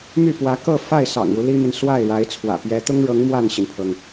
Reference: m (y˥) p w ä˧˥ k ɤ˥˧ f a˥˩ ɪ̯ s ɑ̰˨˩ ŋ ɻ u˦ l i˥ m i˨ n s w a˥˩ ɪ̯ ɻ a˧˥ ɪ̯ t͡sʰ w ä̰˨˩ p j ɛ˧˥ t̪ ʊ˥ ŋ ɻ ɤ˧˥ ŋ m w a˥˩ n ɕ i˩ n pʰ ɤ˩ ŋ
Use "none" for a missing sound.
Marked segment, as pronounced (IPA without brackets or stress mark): y˥˩